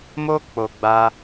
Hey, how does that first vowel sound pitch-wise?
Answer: high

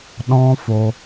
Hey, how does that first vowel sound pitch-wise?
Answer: high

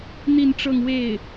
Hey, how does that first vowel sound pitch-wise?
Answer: falling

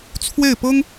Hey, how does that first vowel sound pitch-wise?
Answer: falling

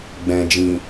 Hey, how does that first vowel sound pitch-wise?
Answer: low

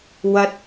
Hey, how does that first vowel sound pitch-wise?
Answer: high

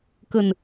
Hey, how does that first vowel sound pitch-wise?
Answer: low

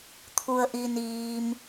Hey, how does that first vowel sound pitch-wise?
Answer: low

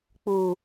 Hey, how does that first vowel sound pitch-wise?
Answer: low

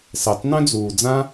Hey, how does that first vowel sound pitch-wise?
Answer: low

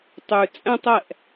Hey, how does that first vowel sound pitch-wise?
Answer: low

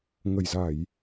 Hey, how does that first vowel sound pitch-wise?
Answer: low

